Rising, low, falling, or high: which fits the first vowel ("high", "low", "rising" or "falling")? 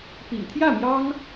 low